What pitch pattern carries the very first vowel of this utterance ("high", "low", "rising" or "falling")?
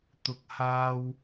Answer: low